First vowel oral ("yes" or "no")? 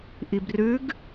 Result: yes